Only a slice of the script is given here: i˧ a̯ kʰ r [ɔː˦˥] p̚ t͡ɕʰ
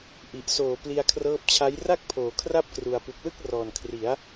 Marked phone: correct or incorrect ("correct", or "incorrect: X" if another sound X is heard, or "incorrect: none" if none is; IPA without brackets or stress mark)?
incorrect: ɤː˦˥